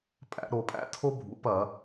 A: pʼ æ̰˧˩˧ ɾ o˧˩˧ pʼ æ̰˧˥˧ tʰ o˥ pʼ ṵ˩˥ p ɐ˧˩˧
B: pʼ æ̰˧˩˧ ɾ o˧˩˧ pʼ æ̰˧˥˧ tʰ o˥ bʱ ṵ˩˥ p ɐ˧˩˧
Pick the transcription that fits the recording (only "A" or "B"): B